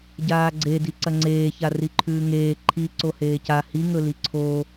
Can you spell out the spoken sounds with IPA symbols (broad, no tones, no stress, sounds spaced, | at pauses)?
ɟ aː ɡ͡ǀ e d i ǀ ɐ ŋ͡ǀ eː ç a r i ǃʰ ʉː ŋ eː ǃʰ i ǀ o h eː c a h i ŋ ɵ l i ǀʰ o